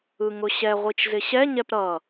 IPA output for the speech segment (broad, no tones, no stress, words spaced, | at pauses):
ɯŋʊɕɛ ʁʷit͡ʃzɪɕɛ ɲɛpɾʌ